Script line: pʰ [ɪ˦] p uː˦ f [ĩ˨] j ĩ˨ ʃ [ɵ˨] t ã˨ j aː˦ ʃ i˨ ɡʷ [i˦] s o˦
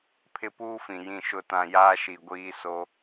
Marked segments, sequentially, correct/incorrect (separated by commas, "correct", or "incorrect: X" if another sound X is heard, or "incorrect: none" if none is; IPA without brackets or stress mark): correct, correct, incorrect: ʊ˨, incorrect: iː˦